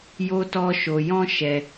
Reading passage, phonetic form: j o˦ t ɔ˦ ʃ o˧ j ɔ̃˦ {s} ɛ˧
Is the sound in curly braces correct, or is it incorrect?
incorrect